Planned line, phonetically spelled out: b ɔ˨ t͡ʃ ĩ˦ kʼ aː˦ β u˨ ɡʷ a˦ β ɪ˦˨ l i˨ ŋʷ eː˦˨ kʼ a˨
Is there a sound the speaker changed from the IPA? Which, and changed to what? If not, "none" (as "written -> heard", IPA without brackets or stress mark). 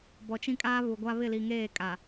ŋʷ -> ŋ